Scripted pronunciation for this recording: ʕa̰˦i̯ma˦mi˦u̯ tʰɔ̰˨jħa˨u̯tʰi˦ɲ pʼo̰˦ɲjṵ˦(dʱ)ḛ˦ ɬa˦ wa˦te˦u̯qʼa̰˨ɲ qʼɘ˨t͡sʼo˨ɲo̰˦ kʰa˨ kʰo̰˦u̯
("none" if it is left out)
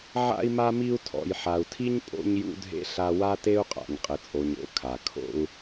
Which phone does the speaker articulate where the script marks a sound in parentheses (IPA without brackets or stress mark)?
dʱ